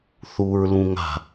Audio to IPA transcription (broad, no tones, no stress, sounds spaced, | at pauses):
θ u ɹ l ũ ŋ a̤